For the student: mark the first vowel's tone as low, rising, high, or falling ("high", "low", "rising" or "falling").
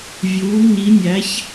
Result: rising